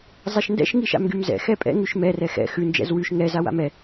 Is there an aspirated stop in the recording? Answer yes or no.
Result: no